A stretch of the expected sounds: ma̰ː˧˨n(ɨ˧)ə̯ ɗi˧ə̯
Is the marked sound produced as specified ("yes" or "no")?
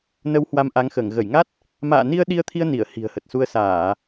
no